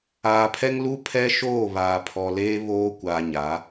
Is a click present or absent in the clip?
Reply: absent